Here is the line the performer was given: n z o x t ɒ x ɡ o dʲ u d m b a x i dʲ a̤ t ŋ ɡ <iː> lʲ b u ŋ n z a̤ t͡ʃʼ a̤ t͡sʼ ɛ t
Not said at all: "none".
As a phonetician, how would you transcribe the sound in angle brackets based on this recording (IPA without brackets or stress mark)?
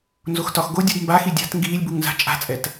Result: iː